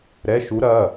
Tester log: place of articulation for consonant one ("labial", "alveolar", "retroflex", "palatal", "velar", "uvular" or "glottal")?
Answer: alveolar